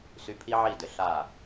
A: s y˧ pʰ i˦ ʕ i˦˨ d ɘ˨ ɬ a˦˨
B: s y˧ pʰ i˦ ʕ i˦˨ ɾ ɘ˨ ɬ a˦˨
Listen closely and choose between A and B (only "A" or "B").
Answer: A